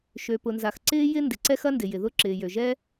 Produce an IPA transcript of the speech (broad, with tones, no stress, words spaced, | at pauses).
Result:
ʃø˩pʊ˩nza˩x ǀɪː˥jɪ˥ ndɪ˩ǀɛ˥xɐ˥ndɪ˩ jɪ˩ðʊ˥ ǁɪː˩jø˩ʒɛ˥